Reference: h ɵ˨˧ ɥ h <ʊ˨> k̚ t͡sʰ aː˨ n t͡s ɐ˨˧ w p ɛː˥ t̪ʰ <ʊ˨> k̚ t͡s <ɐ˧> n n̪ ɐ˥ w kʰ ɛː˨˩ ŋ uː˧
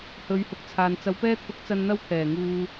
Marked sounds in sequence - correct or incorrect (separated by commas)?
incorrect, incorrect, correct